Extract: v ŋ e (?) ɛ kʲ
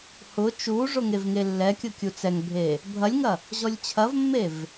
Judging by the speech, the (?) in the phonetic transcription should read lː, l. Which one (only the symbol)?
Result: lː